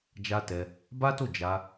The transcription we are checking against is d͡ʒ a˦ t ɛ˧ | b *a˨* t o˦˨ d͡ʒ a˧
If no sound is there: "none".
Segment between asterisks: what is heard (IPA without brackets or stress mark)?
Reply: a˦